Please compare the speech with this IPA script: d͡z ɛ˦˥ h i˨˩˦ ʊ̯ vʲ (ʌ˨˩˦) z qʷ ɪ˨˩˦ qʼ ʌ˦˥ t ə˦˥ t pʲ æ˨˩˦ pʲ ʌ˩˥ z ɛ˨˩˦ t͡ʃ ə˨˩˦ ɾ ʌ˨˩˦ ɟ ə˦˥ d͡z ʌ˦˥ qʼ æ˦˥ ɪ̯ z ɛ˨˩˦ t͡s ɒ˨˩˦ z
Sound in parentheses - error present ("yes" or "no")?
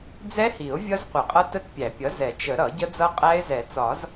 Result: yes